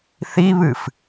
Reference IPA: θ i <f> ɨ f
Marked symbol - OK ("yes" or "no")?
no